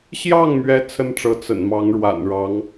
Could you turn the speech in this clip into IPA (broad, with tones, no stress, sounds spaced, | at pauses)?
ɕ j ɑ˥˩ ŋ m ɥ ɛ˧˥ t͡sʰ ə˥ n ʈ͡ʂ ɤ˧˥ t͡s ə̰˨˩ n m ɑ˧˥ ŋ ɻ w a̰˨˩ n ɻ ɑ˧˥ ŋ